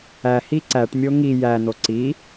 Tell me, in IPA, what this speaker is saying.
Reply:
æ h i ǀ æ ʈ mʲ o ŋ i j æ n̪ o ǀ i

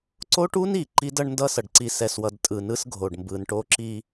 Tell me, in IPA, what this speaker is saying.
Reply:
ǀ o˦ ʈ u˦ n i˨ ǃ i˦ d ʌ˦ ɳ n d ʌ˦ s ʌ˨ ɖ ǀ i˨ s ɛ˨ s w ʌ˨ d tʼ ɯ˨ n ɯ˦ s ɡʱ o˨ ɖ m b ɯ˨ n ʈ o˦ ǁ i˦

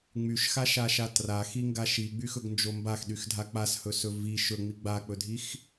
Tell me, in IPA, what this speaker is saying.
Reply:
ŋ͡m y ʃ x a ʃ a ʃ a t r a x i ŋ ɡ a ʃ i ɡ͡b y x ɵ ɡ n d͡ʒ o m b a x ɗ y x dʱ a k͡p a s h ɵ s ɵ v i ʃ ɵ ŋ͡m i ɡ͡b a k͡p ɵ dʱ i x

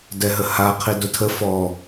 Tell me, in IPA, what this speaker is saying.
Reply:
d ɛ ɦ ə h a qʰ i d ʊ tʰ ə f ɔ

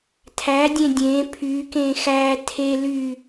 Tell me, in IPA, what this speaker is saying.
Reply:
tʰ æ dʲ ẽ dʲ ẽ pʰ y k ẽ x æ tʰ e l y

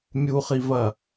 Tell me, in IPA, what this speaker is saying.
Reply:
mʲ u χ i v ɐ

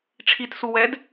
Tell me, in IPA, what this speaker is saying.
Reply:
ʈ͡ʂʰ i t s u w ɛ d

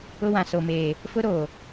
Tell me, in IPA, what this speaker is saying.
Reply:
ʊ˦ w ã˨ s o˨ m eː˨ | f ʊ˦ ɾ oː˨

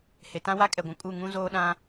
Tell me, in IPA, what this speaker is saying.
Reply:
h e˨ t ã˦ w a˦ kʼ ɛ˨ ɡʷ ũ˨ kʼ u˦˨ ŋ ũ˦ z oː˦ ɗ ã˦

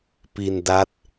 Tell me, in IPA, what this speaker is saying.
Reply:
p i˧ n d a˦˥ t̚

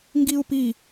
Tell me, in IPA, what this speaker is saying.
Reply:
ŋ ɡ i u̯ p i

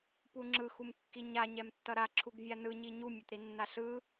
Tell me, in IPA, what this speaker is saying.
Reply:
p u ŋ͡ǁ ɯ x u m kː i ɲ a ɲ ɛ m tː ʌ ɾ a ǁʰ u ɡ vʲ a n ɯ ɲ i ɲ u mʲ ʌ t ɾ i nː a ɬ ɯ

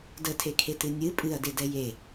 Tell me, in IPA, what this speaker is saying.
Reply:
d ə tʰ e kʰ e t ɨ nʲ ɨ pʼ ɨ ɐ̯ d e d ɛ j e

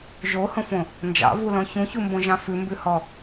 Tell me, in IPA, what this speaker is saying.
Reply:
ʒ o h õ f õ | n d͡ʒ ɑ̰ v u l ɔ̃ ç ũ ç u m b õ ʒ ɑ̃ f ʉ m b ʉ h ɔ

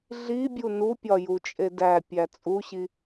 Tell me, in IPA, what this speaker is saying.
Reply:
ɮ i bʲ u n u pʲ ɒ j u t͡ʃʼ e d æ pʲ æ t͡sʼ u ɕ i

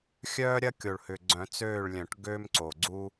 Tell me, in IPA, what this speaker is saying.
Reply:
xʲ œː˥ ɾʲ ɐ˥ kʲ o˨˩ ɭ h ʏ˨˩ ɡ͡ǀ œ̃˨˩˦ t͡s øː˦˨ ɭ lʲ œ̃˨˩˦ ʈ ɡ øː˥ m ǀ o˨˩ ɡ͡ǀ u˥

